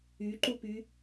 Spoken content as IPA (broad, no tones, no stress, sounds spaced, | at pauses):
y ǃ u p y